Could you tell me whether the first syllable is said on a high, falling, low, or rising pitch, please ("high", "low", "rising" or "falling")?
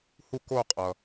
falling